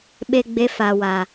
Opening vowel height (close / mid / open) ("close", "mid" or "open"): mid